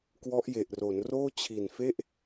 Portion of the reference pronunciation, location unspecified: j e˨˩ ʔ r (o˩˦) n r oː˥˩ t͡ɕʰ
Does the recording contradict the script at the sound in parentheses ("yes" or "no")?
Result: no